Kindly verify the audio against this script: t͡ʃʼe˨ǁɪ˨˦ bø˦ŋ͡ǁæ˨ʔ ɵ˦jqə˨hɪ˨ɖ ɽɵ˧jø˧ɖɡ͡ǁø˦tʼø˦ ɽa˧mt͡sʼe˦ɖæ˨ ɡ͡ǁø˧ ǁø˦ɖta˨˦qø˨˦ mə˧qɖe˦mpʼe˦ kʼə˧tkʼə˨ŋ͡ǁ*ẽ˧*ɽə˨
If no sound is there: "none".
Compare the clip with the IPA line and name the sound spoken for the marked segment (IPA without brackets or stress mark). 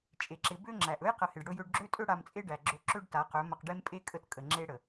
e˧